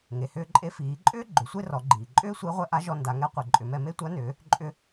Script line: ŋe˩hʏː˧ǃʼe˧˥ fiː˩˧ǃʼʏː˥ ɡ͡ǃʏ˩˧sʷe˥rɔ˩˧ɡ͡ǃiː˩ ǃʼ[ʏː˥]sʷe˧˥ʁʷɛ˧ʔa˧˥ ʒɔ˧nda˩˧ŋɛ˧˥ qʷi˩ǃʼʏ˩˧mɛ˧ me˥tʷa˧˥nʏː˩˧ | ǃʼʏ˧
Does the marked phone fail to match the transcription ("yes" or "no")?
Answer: no